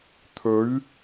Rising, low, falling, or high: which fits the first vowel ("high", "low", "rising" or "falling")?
rising